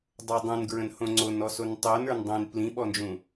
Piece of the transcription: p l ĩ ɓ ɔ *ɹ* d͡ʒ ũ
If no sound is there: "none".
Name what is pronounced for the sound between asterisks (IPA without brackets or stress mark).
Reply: n